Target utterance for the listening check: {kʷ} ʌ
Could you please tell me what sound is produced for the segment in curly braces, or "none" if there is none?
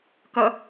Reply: k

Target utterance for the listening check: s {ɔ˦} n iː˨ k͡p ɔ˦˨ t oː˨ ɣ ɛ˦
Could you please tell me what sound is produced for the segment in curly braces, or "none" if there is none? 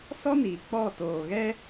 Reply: ɔ˦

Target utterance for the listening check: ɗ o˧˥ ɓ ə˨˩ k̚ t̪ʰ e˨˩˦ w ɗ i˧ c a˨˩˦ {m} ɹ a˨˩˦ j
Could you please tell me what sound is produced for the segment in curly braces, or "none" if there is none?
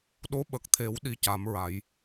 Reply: m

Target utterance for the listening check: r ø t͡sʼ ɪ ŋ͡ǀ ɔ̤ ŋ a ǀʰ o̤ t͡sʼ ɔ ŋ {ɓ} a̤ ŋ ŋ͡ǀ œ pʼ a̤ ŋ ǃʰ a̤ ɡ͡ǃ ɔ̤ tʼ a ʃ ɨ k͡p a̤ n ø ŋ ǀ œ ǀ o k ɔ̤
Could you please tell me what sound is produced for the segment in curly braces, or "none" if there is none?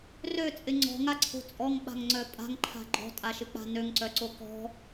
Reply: ɓ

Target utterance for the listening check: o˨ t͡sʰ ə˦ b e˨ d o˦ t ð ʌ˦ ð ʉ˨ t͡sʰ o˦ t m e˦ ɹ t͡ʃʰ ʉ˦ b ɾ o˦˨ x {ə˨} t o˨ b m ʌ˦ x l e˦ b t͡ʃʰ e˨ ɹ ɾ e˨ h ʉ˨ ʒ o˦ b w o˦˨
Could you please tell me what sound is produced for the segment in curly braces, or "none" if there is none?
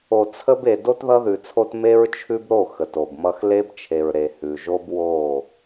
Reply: ə˨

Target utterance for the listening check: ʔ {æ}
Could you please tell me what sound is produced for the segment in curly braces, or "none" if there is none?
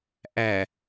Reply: æ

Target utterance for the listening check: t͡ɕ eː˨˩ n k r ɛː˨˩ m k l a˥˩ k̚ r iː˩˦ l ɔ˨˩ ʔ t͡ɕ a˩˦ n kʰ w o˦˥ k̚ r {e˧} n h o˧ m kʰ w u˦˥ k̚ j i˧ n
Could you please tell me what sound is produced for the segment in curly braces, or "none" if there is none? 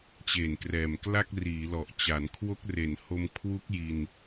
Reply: e˨˩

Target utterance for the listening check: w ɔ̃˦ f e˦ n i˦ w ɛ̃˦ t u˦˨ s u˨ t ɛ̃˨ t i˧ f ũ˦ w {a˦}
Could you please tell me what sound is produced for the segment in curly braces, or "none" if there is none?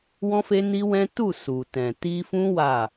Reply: a˦˨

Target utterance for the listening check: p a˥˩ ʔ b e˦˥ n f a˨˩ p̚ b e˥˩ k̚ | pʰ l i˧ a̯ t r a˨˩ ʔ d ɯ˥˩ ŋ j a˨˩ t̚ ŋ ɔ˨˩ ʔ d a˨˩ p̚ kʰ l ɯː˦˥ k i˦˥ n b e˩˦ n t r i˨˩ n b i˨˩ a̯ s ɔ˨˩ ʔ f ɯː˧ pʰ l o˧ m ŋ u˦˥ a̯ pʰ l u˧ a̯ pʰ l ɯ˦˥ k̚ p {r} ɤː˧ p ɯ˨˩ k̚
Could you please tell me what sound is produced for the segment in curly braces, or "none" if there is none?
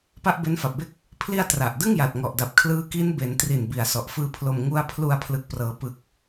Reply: r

